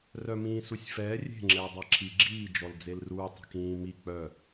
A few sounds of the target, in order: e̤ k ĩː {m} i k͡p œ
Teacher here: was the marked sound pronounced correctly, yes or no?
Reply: yes